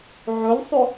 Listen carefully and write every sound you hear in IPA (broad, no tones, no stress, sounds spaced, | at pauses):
ʕ ɵ lʲ sˤ ø